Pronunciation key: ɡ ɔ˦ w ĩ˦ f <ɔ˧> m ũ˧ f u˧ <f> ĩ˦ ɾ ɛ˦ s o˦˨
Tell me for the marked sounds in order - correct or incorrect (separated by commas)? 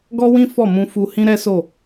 incorrect, incorrect